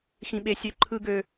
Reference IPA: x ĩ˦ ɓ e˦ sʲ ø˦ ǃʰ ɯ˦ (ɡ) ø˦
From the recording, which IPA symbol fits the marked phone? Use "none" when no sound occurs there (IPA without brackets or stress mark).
ɡ